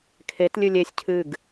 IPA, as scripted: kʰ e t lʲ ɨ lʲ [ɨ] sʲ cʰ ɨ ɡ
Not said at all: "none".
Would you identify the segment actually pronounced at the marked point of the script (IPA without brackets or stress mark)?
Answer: e